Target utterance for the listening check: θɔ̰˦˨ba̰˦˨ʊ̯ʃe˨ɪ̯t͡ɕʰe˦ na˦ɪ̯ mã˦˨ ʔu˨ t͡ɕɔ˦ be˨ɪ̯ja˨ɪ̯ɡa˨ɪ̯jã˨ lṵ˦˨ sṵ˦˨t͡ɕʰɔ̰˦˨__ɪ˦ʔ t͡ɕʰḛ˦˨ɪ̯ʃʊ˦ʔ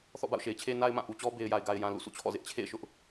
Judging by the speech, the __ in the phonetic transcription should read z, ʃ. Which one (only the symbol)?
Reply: z